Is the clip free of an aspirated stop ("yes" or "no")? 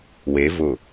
yes